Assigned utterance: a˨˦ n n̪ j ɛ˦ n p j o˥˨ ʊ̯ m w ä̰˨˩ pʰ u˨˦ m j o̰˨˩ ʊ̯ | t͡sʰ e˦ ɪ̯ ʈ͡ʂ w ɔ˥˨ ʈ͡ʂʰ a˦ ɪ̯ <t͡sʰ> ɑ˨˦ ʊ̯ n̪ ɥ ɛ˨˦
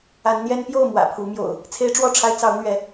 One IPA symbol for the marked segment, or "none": t͡s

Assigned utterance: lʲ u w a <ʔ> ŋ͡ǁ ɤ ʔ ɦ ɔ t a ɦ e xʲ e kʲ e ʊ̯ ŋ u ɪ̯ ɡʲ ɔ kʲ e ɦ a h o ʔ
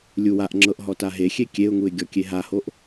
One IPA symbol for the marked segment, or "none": ʔ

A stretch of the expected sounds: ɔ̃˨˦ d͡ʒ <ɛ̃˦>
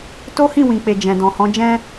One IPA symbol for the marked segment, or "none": ɛ̃˦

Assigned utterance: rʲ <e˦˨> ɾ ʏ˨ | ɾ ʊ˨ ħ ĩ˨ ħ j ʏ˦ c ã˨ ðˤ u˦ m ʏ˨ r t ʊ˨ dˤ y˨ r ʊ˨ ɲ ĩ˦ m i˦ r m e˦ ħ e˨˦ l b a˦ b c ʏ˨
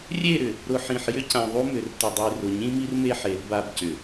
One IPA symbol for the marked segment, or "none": e˦˨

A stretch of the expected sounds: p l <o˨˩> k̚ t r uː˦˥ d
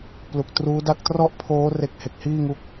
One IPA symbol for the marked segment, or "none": u˨˩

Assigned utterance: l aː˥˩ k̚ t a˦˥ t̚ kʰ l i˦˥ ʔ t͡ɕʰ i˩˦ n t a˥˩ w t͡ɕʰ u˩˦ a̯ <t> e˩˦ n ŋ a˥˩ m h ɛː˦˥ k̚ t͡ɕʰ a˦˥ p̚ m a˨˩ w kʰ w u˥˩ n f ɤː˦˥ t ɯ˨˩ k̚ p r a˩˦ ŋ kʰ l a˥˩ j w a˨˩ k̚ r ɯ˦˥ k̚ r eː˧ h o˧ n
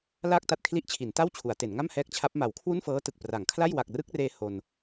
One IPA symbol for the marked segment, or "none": t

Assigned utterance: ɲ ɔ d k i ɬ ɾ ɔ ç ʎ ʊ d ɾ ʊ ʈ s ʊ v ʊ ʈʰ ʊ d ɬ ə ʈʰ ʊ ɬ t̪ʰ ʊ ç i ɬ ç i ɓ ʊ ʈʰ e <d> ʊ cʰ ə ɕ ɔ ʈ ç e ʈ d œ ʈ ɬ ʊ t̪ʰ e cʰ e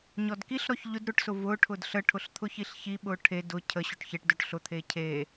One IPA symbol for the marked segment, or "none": d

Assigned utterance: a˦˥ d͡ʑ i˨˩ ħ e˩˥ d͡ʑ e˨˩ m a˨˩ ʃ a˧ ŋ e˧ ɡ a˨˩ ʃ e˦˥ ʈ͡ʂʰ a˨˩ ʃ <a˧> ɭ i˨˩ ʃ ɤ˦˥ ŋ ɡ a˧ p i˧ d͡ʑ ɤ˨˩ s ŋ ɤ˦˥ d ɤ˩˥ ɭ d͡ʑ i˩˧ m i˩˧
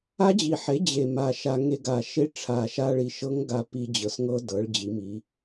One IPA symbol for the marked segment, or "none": a˧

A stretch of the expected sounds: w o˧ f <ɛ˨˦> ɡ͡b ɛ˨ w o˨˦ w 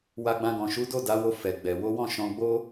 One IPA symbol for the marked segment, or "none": ɛ˨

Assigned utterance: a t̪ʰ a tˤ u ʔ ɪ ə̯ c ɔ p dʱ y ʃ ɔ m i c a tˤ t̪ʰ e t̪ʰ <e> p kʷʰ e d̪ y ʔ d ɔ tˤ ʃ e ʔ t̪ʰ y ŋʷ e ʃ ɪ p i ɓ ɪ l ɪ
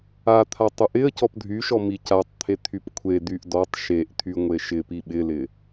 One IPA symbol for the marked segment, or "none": y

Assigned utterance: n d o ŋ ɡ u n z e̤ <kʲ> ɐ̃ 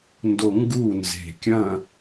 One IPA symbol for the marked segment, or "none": kʲ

